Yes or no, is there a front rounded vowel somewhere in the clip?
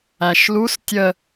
no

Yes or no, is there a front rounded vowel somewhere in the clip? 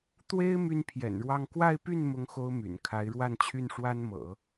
yes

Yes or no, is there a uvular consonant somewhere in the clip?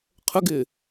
yes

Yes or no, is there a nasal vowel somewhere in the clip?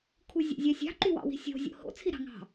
no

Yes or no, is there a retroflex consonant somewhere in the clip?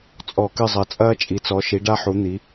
yes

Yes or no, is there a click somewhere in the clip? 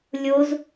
no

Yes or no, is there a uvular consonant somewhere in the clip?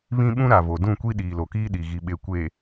no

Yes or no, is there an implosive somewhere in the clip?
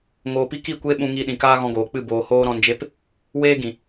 yes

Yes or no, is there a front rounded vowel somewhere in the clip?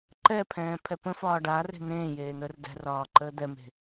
no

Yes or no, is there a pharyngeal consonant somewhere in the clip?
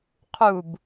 no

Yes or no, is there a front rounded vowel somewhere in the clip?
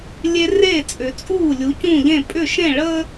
yes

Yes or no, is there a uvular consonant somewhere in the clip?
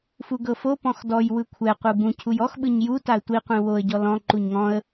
yes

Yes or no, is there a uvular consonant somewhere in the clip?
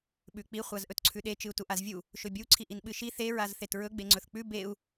yes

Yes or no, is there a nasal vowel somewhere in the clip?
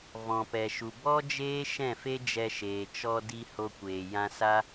yes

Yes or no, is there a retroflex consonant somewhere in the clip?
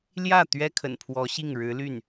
yes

